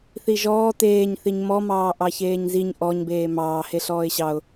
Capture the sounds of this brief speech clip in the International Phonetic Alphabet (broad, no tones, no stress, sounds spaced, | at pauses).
θ i ʒ ɔː t eː ɲ θ i ɲ m ɔ m ɑː ʔ ɑ ç eː ɲ z i ɲ ʔ ɔ ɲ b eː m ɑː h e ɬ ɔː ɪ̯ ɕ ɑ ʊ̯